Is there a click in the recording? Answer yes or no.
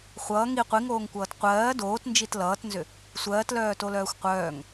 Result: no